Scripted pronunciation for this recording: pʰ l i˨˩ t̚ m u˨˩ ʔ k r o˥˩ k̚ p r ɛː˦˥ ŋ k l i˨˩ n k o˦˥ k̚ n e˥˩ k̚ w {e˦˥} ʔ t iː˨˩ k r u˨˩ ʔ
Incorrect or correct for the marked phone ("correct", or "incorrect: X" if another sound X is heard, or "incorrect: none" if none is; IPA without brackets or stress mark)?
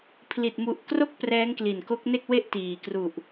incorrect: e˥˩